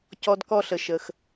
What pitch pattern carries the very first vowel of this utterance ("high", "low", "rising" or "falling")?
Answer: high